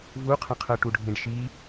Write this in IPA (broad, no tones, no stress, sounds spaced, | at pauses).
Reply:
v u qʰ ə̃ qʰ ɤ ʈ u ɖʱ ĩ ɖ ʃ i